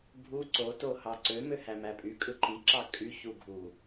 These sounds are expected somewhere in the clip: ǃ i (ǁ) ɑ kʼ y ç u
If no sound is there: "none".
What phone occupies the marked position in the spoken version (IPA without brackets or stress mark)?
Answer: ǁ